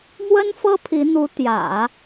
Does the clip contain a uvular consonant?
no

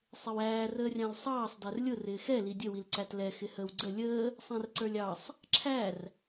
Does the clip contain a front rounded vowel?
no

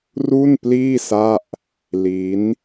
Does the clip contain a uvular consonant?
no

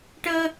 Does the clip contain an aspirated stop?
no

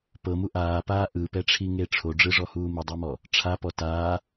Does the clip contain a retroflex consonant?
yes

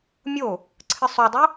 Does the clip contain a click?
yes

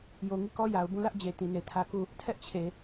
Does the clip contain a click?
no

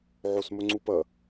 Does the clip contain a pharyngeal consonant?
yes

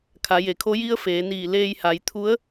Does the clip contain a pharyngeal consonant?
no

